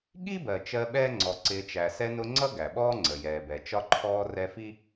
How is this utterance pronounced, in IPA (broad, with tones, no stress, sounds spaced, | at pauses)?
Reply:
ɠ i˥ b ɜ˩ t͡ʃ ɜ˦ ɓ ɛː˥ ŋ͡ǀ ɔ˩ ǀ ɪː˨ t͡ʃ æ˩ s ɛ˦ n ʊ˦ ŋ͡ǀ ʌ˥ ɡ æ˩ ɓ ɔː˥ ŋ͡ǀ ə˩ j ɛː˩ b ɛ˩ t͡ʃ ɒ˦ ǃʰ ɔː˦ r ɛ˦ f i˥